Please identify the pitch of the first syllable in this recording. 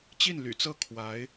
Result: falling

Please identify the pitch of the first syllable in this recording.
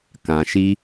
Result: low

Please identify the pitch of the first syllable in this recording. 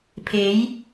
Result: rising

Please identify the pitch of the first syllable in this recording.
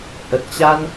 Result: low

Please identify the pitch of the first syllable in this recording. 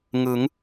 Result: rising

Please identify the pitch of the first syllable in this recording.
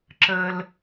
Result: low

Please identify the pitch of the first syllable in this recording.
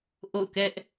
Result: falling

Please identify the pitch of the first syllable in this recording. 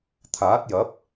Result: rising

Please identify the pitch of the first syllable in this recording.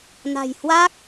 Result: low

